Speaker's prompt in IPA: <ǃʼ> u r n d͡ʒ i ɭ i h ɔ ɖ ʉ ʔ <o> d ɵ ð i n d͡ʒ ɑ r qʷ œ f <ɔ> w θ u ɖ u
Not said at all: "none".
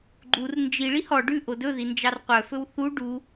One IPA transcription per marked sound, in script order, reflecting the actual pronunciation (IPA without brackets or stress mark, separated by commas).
ɡ͡ǃ, o, ɵ